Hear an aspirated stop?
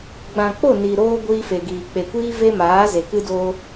no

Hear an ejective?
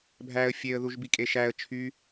yes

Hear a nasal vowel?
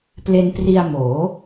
no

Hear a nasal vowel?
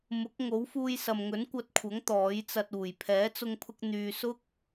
no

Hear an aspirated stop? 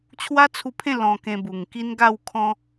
yes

